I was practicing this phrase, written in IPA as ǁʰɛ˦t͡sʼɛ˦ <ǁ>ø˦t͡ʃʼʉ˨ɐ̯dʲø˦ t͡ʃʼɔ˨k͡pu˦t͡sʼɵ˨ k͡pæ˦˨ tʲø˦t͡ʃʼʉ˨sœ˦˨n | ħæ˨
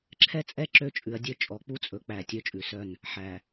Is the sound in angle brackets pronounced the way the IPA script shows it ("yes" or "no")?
yes